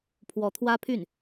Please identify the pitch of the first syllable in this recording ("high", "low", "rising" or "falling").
rising